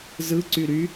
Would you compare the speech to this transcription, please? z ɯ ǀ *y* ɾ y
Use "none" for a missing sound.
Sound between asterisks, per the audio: y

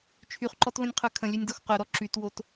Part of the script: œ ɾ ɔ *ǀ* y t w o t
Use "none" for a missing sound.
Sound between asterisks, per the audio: ǁ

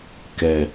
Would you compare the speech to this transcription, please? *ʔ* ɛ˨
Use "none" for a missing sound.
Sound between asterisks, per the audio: k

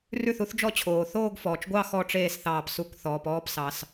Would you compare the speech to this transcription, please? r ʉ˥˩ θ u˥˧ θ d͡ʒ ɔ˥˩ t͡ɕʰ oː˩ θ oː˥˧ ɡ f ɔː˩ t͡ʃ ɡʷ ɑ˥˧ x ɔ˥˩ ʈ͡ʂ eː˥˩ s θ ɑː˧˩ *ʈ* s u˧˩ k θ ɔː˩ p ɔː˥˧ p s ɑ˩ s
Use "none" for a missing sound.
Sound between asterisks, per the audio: p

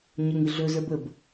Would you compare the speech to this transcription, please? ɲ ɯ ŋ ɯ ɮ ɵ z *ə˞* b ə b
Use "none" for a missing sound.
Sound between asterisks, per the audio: ə˞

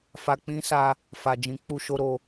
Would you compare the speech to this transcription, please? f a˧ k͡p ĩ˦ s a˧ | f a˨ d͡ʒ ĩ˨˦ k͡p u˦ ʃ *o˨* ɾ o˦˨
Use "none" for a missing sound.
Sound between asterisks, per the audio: o˦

